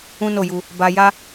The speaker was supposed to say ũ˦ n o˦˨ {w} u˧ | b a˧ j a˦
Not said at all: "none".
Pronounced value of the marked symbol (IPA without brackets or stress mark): j